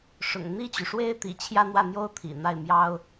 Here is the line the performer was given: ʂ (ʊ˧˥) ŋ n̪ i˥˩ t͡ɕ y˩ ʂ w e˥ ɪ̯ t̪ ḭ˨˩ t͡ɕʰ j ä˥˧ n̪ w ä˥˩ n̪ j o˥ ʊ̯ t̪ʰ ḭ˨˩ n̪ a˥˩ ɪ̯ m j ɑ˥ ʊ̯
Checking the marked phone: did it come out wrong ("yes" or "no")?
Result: yes